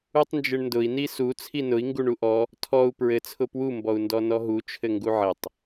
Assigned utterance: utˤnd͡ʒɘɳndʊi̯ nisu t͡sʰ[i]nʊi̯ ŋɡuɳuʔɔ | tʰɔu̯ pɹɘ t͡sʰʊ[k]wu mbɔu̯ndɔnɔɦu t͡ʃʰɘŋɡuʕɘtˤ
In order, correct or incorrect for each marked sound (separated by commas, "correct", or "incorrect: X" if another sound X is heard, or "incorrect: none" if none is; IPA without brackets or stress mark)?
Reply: correct, incorrect: p